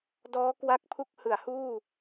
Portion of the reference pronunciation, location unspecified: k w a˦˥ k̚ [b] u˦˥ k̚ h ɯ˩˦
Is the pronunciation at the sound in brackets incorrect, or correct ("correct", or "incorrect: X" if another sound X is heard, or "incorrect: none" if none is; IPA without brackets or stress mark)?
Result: incorrect: pʰ